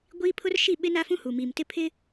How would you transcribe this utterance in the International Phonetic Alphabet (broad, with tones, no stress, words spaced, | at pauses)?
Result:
ɡʷiː˦pʰʊ˦rʃi˦˨ ɓɪ˦na˦fũ˦hu˨ mi˨m tɪ˦pʰɪ˦